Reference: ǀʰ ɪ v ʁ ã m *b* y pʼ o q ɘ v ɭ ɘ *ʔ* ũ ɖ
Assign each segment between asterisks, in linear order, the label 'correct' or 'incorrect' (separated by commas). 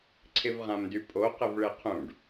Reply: incorrect, incorrect